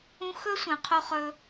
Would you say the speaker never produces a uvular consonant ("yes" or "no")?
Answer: no